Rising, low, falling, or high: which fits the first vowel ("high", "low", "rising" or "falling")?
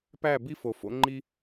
falling